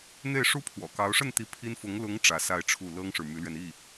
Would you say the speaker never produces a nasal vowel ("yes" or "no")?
yes